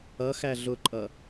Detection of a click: present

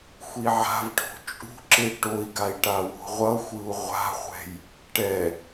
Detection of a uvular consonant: present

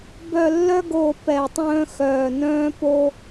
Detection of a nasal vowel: present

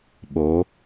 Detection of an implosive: present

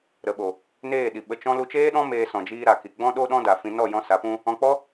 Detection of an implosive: present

